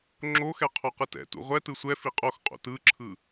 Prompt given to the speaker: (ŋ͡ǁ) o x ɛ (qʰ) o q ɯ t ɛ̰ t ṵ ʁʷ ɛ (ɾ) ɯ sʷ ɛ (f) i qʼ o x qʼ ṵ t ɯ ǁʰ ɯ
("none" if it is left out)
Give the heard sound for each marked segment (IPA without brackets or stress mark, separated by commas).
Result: ŋ͡ǁ, qʰ, t, f